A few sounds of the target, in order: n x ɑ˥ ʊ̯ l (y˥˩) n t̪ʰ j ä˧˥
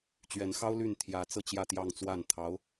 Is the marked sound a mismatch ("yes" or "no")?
no